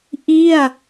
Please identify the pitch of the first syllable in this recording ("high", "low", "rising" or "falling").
falling